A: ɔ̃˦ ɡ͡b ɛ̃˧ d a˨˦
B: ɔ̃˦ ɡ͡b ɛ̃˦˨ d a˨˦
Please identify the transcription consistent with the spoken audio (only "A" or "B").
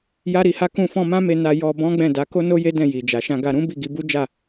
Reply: B